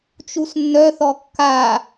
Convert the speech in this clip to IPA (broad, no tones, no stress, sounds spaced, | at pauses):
t͡ʃ u s nː œ θ ɔ kː a